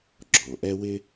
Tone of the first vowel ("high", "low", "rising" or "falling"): low